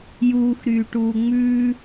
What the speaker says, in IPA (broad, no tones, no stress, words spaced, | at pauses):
juːxɾyːʈuː ŋ͡mʉː